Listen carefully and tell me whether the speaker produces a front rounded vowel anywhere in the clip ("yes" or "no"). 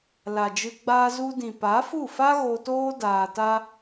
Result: no